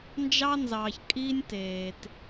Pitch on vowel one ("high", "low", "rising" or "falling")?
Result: high